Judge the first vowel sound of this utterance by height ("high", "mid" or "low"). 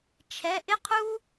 mid